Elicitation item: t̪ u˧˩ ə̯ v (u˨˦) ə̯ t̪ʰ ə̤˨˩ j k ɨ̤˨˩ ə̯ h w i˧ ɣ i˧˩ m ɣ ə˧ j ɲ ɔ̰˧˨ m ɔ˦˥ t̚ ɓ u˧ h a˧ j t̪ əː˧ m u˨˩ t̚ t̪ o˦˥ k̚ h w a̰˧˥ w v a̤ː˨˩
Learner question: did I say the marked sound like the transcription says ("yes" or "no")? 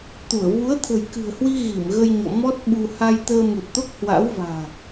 yes